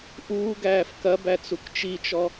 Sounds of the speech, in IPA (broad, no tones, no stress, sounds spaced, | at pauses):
ʔ uː ɡ æː f k ɐ b æ t͡s u k t͡ʃ i t͡ʃ ɔ